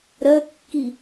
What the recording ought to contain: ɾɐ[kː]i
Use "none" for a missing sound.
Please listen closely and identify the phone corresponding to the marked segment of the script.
kː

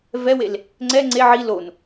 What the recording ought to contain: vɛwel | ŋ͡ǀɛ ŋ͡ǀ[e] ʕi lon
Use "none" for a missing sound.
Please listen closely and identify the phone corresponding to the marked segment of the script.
e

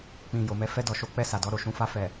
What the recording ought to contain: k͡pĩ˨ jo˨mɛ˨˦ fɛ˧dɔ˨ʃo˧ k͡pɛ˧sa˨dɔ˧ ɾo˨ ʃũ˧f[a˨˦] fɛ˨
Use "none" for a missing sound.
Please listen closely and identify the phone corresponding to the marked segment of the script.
a˧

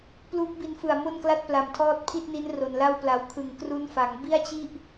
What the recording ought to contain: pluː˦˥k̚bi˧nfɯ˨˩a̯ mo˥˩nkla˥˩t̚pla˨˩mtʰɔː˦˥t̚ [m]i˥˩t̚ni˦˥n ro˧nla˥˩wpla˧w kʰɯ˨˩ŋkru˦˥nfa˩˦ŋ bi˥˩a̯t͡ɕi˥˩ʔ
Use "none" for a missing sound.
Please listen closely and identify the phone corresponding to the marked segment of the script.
pʰ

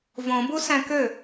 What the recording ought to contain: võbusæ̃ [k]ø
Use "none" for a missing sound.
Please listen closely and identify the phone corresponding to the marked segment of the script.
k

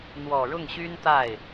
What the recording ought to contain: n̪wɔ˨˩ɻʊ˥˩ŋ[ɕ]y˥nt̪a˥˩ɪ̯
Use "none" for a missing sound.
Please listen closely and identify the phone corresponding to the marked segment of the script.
ɕ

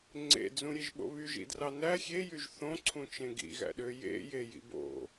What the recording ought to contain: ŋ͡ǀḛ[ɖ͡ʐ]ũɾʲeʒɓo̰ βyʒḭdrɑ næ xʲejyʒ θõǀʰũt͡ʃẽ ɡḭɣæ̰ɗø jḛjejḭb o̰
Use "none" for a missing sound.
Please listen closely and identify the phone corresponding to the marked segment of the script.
d͡z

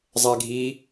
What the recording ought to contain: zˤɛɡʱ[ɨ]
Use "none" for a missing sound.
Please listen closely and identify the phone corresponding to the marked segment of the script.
i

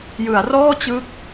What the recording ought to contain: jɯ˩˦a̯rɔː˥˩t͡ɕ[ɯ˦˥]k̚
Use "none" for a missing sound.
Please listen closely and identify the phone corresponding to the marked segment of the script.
ɯ˦˥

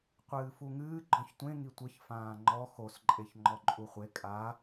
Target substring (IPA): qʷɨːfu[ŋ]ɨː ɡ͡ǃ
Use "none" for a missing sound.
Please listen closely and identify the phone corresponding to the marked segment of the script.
ŋ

